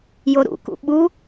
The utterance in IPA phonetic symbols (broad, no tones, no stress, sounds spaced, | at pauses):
j o ɾ ṵ k ṵ ɓ u